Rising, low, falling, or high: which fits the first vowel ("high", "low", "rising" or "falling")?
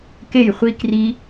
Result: falling